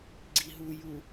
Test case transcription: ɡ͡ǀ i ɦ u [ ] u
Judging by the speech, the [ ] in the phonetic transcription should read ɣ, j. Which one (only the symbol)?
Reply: j